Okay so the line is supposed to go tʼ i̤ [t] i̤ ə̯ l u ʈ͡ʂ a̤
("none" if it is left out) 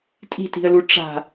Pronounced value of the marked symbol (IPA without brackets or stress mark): t